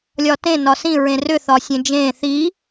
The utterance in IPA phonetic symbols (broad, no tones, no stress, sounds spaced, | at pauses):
lʲ ɒ t ẽ n ɒ s ĩ ɹ ẽ r ʏ θ ɒ sʲ ẽ d͡ʒ ẽ θ i